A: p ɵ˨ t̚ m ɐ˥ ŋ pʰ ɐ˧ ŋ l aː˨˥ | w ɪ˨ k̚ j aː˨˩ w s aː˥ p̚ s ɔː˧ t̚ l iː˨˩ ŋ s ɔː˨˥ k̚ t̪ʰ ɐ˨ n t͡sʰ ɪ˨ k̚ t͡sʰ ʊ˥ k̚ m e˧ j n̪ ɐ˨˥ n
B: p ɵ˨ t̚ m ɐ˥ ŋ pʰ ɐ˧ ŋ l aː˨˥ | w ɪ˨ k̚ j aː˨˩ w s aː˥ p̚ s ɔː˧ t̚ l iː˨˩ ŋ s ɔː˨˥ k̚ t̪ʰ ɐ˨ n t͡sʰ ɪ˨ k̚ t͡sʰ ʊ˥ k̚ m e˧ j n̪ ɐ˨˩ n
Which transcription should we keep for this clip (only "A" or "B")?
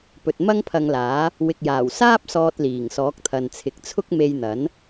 A